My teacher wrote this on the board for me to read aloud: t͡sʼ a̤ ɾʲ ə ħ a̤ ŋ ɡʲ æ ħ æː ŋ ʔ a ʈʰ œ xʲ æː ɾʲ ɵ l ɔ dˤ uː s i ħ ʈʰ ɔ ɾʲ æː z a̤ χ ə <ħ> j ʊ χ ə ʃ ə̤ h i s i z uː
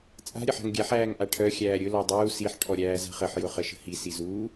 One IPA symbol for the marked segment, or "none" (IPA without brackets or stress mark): ħ